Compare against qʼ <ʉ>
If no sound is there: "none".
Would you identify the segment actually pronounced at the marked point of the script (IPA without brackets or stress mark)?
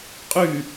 ʉ